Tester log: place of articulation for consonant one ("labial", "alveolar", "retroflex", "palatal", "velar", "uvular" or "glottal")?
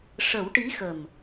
retroflex